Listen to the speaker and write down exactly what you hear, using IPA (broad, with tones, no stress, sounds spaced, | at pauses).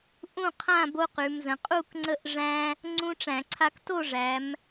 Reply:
ʔ ũ˥˨ qʰ ã˥˨ b o˦ q ʉ˩˧ m z ə̃˩˧ qʼ u˥˨ k ŋ͡ǀ ə˦ ʔ ʐ æ̃˦ | ŋ͡ǀ ũ˦ ʈ͡ʂ æ̃˧˩˧ ǀʰ a˦ k t o˥˨ ʐ æ˩˧ m